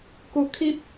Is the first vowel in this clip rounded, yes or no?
yes